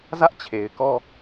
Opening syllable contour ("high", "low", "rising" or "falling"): high